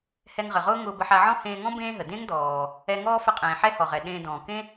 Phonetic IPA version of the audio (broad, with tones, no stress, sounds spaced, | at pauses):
h ɛ˧ ŋ ʁ ə˩ ʁ ʊː˥ ŋ ʊː˧ b ə˧ ħ a˧ ʕ ɔ̃˥ h ẽː˧ ŋ ɔ̃˥ b ẽː˥ ɦ ə˩ d ẽ˥ ŋ d ɔː˩ | ɛ˧ ŋ ɔː˥ f ə˧ qʼ ẽː˩ ħ ɛ˥ h ɔ˩ ʁ ɛ˩ ɗ ẽː˧ d ɔ̃ː˩ k ẽ˥